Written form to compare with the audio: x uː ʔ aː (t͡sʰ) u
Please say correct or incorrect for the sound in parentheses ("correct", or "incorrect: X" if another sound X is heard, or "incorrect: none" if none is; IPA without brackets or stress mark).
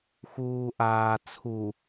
correct